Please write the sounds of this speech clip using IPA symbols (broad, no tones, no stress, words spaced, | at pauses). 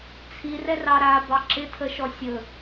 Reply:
t͡sʰirɛr ɑɾa bɑǁɪtʰəʃɔ sʲɵ